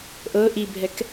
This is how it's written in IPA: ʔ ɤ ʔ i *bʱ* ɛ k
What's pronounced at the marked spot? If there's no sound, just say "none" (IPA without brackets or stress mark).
bʱ